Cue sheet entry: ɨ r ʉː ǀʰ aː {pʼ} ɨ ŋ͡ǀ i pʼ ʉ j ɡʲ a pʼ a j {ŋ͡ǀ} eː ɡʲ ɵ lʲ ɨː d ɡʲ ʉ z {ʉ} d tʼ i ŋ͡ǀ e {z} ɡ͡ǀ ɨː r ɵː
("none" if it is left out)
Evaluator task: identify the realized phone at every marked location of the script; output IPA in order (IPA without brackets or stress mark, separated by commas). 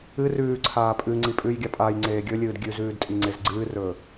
pʼ, ŋ͡ǀ, ʉː, z